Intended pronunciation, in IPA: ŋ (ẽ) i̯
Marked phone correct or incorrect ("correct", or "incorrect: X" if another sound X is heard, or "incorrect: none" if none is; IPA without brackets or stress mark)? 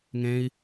correct